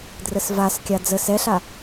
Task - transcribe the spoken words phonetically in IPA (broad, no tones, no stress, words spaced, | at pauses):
drəsvaskʲa d͡zə sɛɬa